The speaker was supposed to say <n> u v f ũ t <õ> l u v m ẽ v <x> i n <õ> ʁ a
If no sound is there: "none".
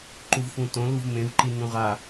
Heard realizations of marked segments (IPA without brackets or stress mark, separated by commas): ǃ, õ, ǃ, ũ